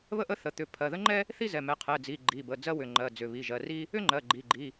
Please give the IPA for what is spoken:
βə˥ʔə˥ θə˩˧˩t̪ʏ˩˧˩ pʰɜ˩˧˩ðə˥ŋ͡ǃɛ˥ | θi˥zɛ˩˧˩mɛ˩˧˩ qʰɛ˩˧˩d͡zi˩˧˩ ɡ͡ǃi˩˧˩bə˩˧˩ d͡zɜ˥wʏ˩˧˩ŋ͡ǃɜ˩˧˩ d͡zʏ˩˧˩βi˩˧˩ ʒɜ˩˧˩ri˥ | ʏ˥ŋ͡ǃɜ˩˧˩ ɡ͡ǃi˩˧˩ɡ͡ǃi˩˧˩

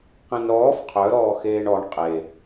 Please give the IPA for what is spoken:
qẽnɾɔːf qʰœɾɔː xeːɳɔɳ qʼe

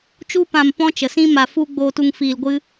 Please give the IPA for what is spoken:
t͡ʃu˦pã˧m pɔ̃˦t͡ʃə˨sĩ˦ ma˧fu˦ ɡ͡boː˧tu˧ŋ fiː˧lɡʷɨ˦

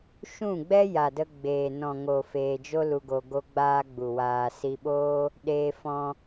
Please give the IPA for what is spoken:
ʃũ˦˨ɡ͡bɛ˦ ja˨də˧ ɡ͡beː˨ nɔ̃˨ŋo˨ feː˧d͡ʒo˦lu˧ɡo˧ ɡo˦ɡ͡baː˦ɡ͡bu˨waː˧ si˧ɓoː˦ | ɗeː˧fɔ̃˧

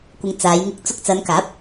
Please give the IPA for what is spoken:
kʷɪ˨ŋ t͡saː˨˧jŋɪ˧k̚ t͡sʊ˧k̚t͡sɐ˨˧nkaː˨˥p̚

